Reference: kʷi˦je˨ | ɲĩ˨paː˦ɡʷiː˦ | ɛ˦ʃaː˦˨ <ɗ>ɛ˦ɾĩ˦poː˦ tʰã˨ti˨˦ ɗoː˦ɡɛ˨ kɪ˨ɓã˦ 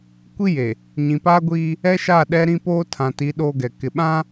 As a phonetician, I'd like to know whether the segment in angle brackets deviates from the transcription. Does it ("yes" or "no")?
no